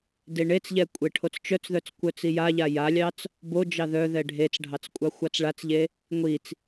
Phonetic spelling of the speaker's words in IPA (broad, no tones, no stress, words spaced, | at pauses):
deɳet͡sʎɛ kʷʼeʈʰot͡st͡ʃœt͡sðœt͡s kʷœt͡sijaʎa jalʲɑt͡s | bod͡ʒɑ ðœðɛ ɖʱet͡sɖʱɑt͡s kʷʼɑxʷɑt͡sɭat͡sʎe | ŋʷit͡s